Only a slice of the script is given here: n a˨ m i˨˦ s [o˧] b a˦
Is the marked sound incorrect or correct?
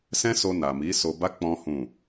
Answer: correct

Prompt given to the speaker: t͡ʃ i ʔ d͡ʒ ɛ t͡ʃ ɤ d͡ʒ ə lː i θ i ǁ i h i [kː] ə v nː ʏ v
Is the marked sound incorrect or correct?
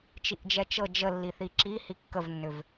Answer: correct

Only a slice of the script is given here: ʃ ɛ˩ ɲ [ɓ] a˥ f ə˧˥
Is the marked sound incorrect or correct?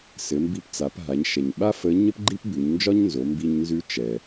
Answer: correct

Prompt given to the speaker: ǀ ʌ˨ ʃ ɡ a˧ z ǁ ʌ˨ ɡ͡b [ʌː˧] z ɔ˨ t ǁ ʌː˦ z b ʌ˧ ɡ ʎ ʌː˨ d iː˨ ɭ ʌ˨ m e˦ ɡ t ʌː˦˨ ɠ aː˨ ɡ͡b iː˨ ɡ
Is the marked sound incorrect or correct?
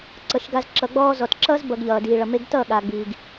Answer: incorrect: ɔː˧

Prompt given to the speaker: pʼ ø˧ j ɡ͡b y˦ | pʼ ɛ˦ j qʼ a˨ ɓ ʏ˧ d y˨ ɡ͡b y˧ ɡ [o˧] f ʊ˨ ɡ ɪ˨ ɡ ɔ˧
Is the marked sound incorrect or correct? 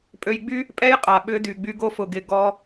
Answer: correct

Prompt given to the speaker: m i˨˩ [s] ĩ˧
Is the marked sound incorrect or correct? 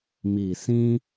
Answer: correct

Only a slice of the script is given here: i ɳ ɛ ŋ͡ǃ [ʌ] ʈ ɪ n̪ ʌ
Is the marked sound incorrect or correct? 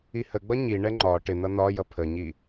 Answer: incorrect: ɒ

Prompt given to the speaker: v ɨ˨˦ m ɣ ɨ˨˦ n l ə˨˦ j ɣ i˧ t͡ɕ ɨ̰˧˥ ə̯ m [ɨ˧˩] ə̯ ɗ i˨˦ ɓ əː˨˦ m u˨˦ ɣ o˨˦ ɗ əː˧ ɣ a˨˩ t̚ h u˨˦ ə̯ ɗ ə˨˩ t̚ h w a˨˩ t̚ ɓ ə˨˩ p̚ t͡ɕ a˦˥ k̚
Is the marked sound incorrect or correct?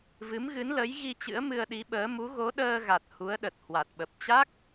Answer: incorrect: ɨ˧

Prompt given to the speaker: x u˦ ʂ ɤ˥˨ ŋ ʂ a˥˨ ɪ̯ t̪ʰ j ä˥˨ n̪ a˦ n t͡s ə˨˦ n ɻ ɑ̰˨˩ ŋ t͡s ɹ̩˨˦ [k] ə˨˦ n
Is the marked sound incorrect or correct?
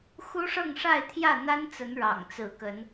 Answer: correct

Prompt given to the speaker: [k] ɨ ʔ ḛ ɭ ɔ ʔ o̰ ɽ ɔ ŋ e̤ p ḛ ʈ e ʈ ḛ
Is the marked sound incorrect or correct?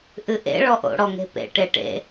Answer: incorrect: ʔ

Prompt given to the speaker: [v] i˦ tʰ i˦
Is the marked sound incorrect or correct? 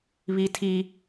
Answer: incorrect: β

